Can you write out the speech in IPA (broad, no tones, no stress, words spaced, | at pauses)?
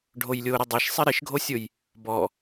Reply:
ɖʱojlʲoɾɪ dˤeʃsˤɪ ɾɪʃɡʱosʲoj | bɔ